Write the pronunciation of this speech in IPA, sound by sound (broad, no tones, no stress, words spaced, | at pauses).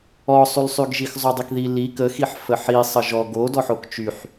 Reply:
ɔsˤylsˤyɡʒix zˤodˤikði li kəxiħ fəħi sˤəʒɔ ɡo dɔħokt͡ʃyħ